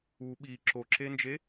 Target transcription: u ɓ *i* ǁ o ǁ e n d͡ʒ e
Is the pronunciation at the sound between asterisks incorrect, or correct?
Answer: correct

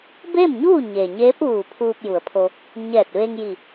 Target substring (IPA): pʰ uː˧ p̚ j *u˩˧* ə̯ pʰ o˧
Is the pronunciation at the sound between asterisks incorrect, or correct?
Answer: correct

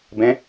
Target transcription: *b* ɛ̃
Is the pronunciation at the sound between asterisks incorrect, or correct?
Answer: correct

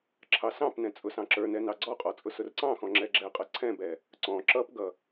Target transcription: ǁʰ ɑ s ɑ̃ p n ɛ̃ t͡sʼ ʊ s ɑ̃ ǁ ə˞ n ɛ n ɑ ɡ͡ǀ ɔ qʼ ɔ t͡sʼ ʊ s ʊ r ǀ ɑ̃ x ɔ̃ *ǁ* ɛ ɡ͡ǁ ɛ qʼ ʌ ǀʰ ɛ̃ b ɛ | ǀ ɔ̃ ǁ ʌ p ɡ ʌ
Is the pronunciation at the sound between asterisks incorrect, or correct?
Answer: incorrect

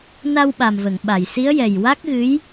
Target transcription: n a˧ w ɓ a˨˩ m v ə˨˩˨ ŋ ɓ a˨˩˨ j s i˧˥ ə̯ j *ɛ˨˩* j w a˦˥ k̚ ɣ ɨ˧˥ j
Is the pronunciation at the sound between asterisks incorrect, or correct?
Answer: correct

